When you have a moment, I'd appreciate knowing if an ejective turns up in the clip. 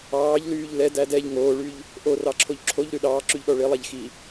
no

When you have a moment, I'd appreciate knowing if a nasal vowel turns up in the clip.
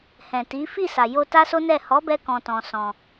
yes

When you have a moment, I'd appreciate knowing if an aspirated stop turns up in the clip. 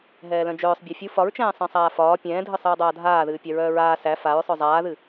no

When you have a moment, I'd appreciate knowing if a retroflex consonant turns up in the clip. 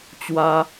no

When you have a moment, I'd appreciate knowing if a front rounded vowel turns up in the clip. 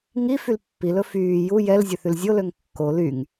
yes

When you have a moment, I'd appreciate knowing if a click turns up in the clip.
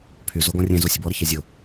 no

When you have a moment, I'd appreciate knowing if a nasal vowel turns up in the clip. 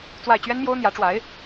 no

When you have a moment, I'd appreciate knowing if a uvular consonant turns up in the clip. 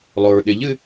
no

